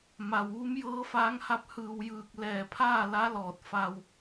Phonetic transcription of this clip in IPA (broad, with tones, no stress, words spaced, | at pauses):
ma˩wʋu˧˥mjɤː˧˥faː˧˥ŋ ha˧˥p̚hɯː˧˩wjɯː˧˩k̚ lɛː˧˩pʰaː˥˨la˧˥lɔː˧˩t̚ fa˧w